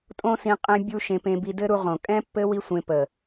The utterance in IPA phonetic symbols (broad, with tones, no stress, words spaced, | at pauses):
tʼõ˦sĩ˧ qʼẽ˧bʲu˧ ʃẽ˧pẽ˧bi˧ dɘ˦ɾu˧ ʁõ˨ kʼɛ̃˦pːɘ˦ wi˦sʷẽ˧ pə˨